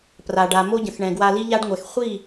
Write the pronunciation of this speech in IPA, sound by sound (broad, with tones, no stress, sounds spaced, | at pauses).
p r a˨ ɖ a˨ m o˦ ɟ ə̃˨ x ɳ ɛ̃˨ ɡ w a˧ l i˦ ʎ a˦ ɖ ŋʷ ɛ˨ x χʷ i˦˨